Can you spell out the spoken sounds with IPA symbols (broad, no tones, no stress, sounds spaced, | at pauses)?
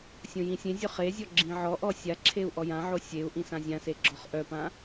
sʲ õ j ĩ sʲ ẽ zʲ œ χ e zʲ ɔ ɡ͡ǁ ĩ ʕ ɔ ʔ ɔ sʲ a ǁʰ e u̯ ʔ ɔ j ã ʕ o sʲ e u̯ ʔ ĩ s ã zʲ ã s e ɡ͡ǁ ɔ χ ʔ œ p ã